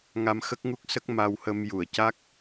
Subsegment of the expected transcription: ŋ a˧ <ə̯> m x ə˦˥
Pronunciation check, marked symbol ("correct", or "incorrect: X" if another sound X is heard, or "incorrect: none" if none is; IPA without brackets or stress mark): incorrect: none